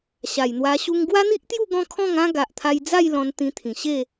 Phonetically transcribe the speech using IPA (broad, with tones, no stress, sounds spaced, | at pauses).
ɕ a˨˩ j n̪ w a˧ ɕ u˦ ŋ ɡ w a˦ n̪ i˦ ʔ t̪ j u˥˧ ɡ ɔ̃˥˧ kʰ ɔ̃˥˧ ŋ ã˦ ɡ a˨ ʔ t̪ʰ a˧ j d͡z a˥˧ j l ɔ̃˧ n t̪ ĩ˧ t̪ʰ ĩ˨˩ ɕ e˥˧